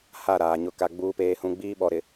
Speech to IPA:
ha˦˨ɾaː˨ɲʊ˦˨ka˦ ɡ͡buː˦peː˦hũ˦ ɡ͡biː˦ɓɔ˨ɾɪ˨

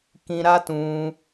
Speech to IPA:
kĩ˧ ɾa˦tũ˧

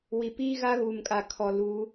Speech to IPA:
wi˨piː˦ ɣa˦ɣuː˨mkʼa˨ kʰɔ˨luː˨˦

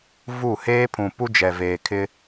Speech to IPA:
vu˦˨ heː˦pʰũ˨ pu˦d͡ʒɛ˨veː˨kʰɪ˦

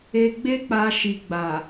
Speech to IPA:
e˧ɡ͡be˦k͡pa˧ʃi˨ ɡ͡ba˨

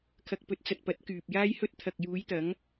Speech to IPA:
kʰɐ˨k̚pɵ˨t̚t͡sɐ˨t̚ pɐ˨˥t̚kyː˨p̚jaː˥jhɵ˥t̚ t̪ʰɐ˨k̚ juː˨˧jt̪ɐ˨˧ŋ

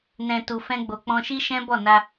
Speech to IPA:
nɛ̃˨ tu˨fɛ̃˧ɡ͡bo˨ k͡pɔ̃˧ʃi˦ʃɛ̃˦ bɔ˦˨na˧

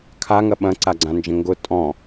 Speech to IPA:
kʰaŋɐ ɓɐ̃ǀaɡ͡ǀãnd͡ʒə̃ ŋɡʊ tʼɔ̃

